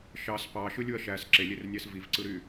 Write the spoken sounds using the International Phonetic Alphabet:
ʃ ɑ s p ɑ ʃ ɯ lʲ u ɐ̯ ʃ æ s ǁ e lʲ e r nʲ æ s v i v ǀ ɯ ɾ y

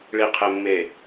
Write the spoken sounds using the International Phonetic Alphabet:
ɭ i˨ qʰ e˨ mː e˨

